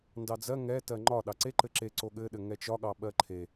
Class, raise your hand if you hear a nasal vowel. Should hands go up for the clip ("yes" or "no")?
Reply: no